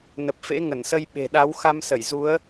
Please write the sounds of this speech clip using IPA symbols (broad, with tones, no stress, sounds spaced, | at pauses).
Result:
n ə˨˩ p̚ f ḛ˧˥ ŋ ə˧˩ n s ə˧ j ɓ e̤˨˩ ɗ a˨˦ w x a˧ m s ə˧˩ j z u˨˦ ə̯